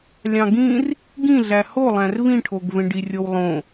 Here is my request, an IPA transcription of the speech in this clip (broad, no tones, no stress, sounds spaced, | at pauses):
lʲ ɑ̃ ɡ ĩ r | ɡ ĩ ɮ æ h o lˠ æ̃ r v ĩ ʈʰ o ɡ v ẽ ɖ i rʲ o w lˠ õ